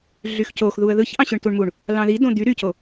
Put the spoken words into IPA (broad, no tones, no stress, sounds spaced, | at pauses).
ɮ y x c o x ð u ə̯ ð ɯ ç ʔ ɑ̃ ɕ ø ɳ t u ɳ m u ɳ | l ɑ̃ ð i d õ d̪ y ɾ y c o